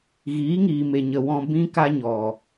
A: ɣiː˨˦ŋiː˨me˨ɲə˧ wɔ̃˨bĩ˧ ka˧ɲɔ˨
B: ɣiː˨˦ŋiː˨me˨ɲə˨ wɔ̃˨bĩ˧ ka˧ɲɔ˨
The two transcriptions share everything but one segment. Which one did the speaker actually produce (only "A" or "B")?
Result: B